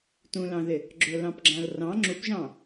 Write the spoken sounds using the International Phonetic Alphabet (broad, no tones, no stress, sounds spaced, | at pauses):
t ũ l ɑ̃ ð ɪ | ɡ͡ǁ ʊ l ɑ̃ p ɡ͡ǁ ã l r ɑ̃ ŋ͡ǁ u p ʒ ɑ̃